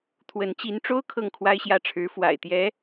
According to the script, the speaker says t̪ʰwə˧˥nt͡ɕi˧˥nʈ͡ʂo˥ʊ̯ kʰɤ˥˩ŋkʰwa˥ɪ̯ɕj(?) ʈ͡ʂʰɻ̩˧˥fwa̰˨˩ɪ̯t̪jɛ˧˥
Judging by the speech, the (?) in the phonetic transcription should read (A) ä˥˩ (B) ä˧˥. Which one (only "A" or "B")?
A